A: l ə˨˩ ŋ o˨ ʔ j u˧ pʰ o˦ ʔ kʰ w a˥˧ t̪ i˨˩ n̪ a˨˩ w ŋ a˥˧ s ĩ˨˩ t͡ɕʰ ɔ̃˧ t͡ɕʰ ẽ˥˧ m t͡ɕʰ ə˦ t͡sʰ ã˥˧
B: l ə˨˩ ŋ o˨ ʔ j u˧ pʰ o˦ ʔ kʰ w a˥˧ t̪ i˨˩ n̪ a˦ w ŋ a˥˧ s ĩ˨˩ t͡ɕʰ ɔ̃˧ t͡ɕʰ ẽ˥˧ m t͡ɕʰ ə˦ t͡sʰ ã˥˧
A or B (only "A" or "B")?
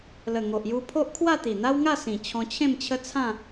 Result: B